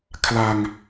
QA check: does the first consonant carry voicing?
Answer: no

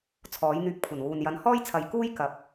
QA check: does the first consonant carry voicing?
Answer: no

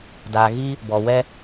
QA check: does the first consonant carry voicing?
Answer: yes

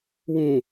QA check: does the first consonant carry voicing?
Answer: yes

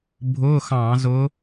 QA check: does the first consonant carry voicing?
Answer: yes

